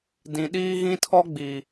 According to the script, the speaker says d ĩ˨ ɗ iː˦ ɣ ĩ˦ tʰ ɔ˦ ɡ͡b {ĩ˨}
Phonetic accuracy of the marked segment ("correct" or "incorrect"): incorrect